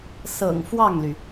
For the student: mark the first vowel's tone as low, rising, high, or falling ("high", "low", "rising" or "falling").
low